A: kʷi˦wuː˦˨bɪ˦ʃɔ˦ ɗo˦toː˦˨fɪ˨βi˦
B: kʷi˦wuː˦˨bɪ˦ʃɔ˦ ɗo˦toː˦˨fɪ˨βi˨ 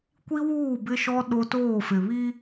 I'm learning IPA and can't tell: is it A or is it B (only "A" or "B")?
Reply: A